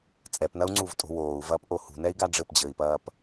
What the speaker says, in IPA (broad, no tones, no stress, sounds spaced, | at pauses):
t͡sʼ ɛ p n ɐ u̯ ŋ͡ǀ u v tʼ o̤ w oː u̯ v ɐː p ʔ o h ṳ n ɛ i̯ ɡ a ɖ͡ʐ ɘ p d͡ʑ ɘː i̯ p ɐː p